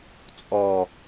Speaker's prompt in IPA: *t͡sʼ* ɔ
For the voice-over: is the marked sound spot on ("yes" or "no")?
yes